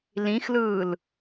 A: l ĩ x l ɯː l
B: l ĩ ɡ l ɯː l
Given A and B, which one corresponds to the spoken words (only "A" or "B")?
A